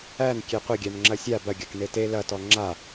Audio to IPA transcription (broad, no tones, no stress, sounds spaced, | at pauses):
æ n kʲ e qʷ ɐ ɡʲ æ n ŋ͡ǁ ɐ sʲ a b ɐ ɡʲ ɐ k n e t e l ɐ t ɔ ŋ͡ǁ a